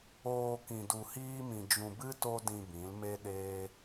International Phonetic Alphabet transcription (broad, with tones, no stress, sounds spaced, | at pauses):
oː˧ k ĩ˧ d u˧ h iː˦ m ĩ˧ d͡ʒ ũ˧ b ɨ˦ t o˦ d ĩ˧ b ĩ˨˦ l m e˦ ɗ eː˦